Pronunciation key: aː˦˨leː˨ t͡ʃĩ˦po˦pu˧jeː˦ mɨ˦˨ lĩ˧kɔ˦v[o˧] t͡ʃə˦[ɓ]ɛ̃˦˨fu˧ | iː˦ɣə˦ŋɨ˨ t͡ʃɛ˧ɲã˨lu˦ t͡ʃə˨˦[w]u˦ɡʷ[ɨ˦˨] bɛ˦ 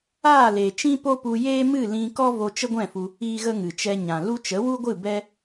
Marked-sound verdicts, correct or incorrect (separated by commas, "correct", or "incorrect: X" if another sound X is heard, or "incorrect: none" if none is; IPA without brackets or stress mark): correct, incorrect: ɡʷ, correct, correct